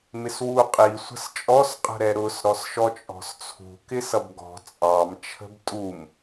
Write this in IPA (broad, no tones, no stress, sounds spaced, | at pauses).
m ɪ s w u qʼ i sʷ ə̤ s t͡ʃʼ ɔ s qʼ ə̤ ɾ ɛ ɾ ʊ s ɾ ɔ s ʃ ɔ t͡ʃʼ ɔ̤ s t͡sʰ ṳ k ɪ s ʌ b ɡ ɔ̤ t͡sʼ ɑ m t͡ʃʰ ə̤ b tʼ u m